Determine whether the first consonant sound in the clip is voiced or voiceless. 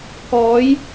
voiceless